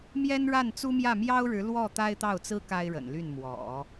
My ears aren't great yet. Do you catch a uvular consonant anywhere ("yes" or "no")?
no